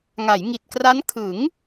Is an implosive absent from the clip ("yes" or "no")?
yes